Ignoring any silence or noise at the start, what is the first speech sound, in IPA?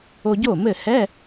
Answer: o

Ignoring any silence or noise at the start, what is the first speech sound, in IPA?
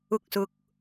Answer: ʊ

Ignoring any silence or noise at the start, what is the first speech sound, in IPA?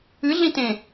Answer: ɨ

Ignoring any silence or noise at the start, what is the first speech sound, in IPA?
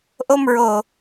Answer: ʔ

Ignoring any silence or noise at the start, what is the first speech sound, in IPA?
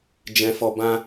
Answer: d͡ʒ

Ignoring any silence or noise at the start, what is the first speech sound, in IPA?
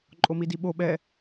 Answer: ǃʼ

